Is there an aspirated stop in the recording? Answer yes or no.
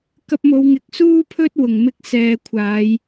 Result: yes